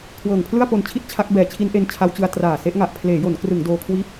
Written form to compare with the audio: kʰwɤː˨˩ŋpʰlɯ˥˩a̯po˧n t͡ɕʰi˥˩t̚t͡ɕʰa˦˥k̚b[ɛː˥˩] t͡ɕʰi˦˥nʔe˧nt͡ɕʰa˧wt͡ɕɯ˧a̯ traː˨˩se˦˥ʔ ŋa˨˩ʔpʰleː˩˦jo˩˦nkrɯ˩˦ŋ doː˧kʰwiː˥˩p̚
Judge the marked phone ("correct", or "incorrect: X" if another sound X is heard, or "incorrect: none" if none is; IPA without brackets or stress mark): incorrect: ɛː˨˩